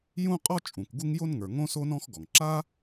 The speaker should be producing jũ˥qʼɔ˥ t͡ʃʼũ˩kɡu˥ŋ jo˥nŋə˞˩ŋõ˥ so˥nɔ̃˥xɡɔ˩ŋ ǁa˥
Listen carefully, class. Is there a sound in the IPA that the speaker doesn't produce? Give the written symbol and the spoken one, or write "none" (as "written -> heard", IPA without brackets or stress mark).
none